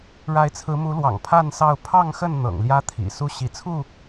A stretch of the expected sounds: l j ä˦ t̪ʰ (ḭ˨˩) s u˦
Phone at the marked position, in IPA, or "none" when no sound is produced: ḭ˨˩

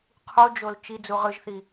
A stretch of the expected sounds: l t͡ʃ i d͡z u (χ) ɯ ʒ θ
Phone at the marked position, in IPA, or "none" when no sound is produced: ʁ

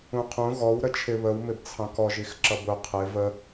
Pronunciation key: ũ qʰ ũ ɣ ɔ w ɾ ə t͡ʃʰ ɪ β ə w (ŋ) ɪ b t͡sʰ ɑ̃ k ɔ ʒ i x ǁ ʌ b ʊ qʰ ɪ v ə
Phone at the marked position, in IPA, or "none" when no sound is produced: m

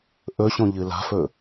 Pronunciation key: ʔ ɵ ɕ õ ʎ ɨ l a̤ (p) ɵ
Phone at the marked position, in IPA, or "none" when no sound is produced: f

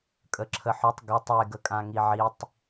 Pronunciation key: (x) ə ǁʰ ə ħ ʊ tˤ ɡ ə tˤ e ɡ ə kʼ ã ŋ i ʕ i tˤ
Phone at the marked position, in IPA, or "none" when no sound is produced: kʼ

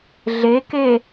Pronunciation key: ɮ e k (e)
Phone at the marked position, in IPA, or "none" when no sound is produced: e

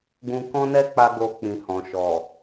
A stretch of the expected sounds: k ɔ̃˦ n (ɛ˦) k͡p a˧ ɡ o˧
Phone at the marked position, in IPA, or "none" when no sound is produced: ɛ˦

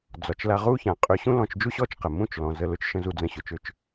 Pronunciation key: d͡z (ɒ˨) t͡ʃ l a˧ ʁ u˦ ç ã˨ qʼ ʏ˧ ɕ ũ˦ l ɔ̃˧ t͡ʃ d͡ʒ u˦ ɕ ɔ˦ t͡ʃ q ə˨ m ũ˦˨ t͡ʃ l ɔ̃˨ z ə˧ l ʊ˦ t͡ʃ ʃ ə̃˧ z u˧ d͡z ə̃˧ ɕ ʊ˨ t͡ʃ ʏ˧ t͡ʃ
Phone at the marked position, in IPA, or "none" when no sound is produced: ɒ˨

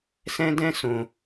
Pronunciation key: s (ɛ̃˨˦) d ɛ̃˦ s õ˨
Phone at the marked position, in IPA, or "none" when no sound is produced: ɛ̃˦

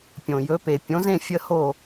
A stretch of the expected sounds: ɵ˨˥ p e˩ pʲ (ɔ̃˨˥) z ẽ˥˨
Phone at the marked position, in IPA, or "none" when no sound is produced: õ˨˥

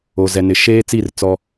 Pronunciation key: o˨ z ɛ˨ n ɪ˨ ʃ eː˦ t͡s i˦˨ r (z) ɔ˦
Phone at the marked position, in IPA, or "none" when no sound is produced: t͡s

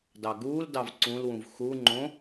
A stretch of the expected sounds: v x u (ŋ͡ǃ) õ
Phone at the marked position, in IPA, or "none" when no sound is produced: ŋ͡ǃ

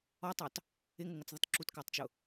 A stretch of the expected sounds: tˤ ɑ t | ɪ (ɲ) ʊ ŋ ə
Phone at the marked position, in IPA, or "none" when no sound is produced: ŋ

